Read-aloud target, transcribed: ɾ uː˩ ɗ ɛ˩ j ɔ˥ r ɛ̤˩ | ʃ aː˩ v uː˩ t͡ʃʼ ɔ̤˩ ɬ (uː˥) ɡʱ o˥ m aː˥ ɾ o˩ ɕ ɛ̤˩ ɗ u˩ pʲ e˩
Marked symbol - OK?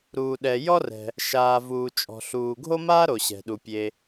no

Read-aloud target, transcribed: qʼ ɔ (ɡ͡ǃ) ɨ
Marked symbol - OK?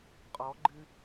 yes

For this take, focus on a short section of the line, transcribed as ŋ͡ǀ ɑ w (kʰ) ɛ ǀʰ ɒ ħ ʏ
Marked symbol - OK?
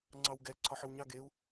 no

